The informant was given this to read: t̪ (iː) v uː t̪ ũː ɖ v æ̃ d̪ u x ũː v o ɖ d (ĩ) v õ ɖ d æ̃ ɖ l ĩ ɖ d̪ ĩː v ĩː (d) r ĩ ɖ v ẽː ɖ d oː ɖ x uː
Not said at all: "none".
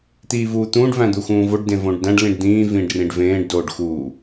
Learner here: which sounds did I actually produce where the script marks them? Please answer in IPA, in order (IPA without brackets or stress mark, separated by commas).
iː, ẽ, ɖ